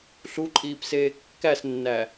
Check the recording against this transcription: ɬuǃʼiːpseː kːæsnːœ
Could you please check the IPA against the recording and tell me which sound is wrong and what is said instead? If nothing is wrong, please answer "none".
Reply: œ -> æ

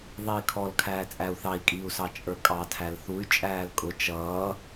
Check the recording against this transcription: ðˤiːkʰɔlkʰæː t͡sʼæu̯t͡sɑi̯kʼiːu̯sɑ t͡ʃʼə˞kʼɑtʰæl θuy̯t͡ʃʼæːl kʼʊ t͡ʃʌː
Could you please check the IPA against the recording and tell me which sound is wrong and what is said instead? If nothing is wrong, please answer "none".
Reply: t͡s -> θ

